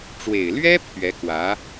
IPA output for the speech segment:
ʈ͡ʂ w e˨˩ ɪ̯ l ɥ ɛ˥ pʰ ɥ ɛ˧˥ k w ä˧˥

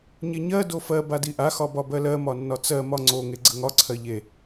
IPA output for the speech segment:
ɲ e ɲ ɜ d o f ɜ b a d i ʔ a x ɒ b ɒ b ɜ l ɜ m ɒ nː ɒ t͡s ɜ m ɒ ŋ͡ǀ o ŋ e ɡ͡ǀ ə ŋ ɒ ǀʰ ɜ ʎ e

